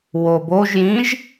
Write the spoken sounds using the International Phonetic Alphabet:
woboʒjĩʒ

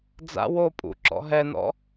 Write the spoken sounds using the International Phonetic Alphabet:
d͡za̰ wo pʼṵǁɔ̰ ɦɛnɔ̰

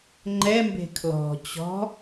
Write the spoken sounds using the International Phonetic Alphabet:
ŋ͡ǃɛmbe̤ kʰlɔ̤ t͡ɕɔ̤

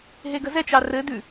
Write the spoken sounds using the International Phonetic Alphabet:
ɦeɡəzɛt͡ʃɑ rɘ dʉ

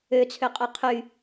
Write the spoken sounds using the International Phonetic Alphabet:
øt͡sʰøqʼœ qʰy

